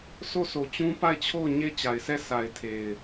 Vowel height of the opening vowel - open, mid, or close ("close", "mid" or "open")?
mid